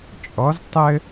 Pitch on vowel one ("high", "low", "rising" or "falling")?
rising